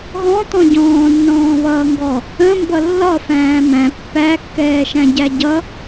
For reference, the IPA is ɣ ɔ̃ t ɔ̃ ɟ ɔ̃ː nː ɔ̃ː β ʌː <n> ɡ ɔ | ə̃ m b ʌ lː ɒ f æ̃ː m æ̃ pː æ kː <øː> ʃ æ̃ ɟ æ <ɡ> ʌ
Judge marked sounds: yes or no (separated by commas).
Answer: no, no, no